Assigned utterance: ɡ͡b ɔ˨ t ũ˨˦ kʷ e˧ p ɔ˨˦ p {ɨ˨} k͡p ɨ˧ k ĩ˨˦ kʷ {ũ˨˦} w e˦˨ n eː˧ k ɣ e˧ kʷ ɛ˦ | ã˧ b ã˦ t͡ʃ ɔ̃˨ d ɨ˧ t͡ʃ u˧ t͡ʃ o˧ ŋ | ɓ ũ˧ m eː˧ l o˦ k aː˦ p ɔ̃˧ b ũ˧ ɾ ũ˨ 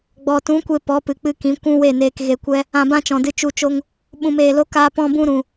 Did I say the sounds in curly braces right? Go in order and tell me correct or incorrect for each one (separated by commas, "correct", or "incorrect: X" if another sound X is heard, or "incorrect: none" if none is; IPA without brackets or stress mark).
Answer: correct, incorrect: ũ˦